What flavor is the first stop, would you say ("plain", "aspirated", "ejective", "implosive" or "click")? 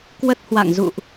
plain